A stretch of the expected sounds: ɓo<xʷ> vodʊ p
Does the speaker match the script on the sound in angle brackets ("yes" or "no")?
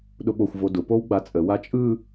yes